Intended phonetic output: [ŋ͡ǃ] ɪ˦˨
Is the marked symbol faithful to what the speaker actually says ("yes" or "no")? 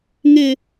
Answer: no